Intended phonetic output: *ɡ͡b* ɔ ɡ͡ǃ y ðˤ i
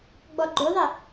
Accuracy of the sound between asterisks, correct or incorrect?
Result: correct